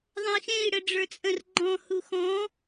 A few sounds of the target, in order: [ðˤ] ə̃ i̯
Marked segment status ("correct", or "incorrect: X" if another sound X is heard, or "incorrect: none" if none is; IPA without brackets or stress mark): correct